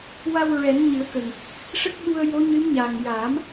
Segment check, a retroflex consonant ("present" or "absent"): present